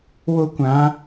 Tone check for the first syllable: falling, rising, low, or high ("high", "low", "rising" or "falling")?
high